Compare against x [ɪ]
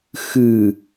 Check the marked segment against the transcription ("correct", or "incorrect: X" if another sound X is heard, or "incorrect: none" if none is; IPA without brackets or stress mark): incorrect: ɨ